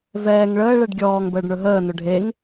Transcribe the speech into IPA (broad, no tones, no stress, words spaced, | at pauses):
vɛːŋ ɭəː ɭɛɖɡʲɔːŋ bəːɖɳɵɦəː nɵɖʱeŋ